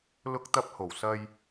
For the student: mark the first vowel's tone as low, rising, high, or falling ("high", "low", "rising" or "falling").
high